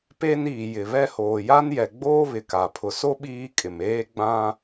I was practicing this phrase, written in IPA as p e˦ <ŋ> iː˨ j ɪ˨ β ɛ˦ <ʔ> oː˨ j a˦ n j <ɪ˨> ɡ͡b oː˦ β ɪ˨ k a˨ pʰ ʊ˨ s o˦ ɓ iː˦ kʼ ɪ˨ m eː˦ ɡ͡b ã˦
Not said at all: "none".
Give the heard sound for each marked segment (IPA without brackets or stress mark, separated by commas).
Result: n, h, ɛ˨